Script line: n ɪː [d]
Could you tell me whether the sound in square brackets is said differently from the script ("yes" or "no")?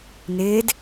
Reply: no